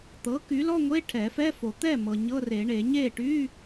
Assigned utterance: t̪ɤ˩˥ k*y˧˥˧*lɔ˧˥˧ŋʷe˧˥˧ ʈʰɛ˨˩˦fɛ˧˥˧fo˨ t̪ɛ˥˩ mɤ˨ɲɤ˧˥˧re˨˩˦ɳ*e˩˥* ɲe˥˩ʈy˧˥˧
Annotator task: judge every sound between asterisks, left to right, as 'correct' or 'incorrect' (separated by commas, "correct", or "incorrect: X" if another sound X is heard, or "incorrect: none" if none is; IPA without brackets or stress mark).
incorrect: y˩˥, incorrect: e˨˩˦